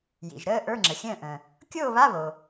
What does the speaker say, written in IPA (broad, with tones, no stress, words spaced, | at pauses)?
jḭ˩ʒɾəː˥˨ ʔə˞˧˥˧ŋ͡ǁə˩xʲə̃ː˥˨ʔə̃ː˩ | kʲoː˥˨βa˧˥˧ βo˩